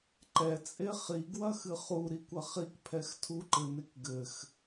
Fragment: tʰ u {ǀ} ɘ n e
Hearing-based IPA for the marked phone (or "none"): ǃ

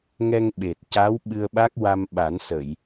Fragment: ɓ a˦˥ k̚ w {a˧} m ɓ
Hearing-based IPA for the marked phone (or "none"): a˧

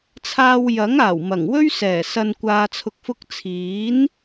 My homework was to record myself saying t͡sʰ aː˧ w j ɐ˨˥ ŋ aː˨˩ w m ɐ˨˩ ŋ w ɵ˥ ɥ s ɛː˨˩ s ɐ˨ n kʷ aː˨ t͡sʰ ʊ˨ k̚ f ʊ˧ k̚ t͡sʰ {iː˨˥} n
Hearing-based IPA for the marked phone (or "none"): iː˨˥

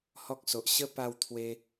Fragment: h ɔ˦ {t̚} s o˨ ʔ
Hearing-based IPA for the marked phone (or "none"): k̚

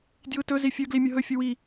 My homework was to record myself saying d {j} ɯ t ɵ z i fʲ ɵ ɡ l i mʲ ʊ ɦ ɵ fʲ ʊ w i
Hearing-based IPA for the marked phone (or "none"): j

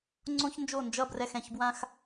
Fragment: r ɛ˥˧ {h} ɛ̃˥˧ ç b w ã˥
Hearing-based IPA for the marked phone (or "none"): x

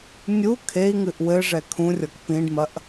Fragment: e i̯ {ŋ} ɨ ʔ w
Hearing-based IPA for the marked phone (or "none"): ŋ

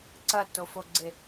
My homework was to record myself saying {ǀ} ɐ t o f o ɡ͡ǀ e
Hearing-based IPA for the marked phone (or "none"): ǀ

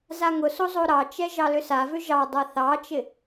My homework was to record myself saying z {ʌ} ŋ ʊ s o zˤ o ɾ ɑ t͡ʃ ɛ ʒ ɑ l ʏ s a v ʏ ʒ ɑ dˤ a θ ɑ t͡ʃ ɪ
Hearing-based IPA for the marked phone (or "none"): a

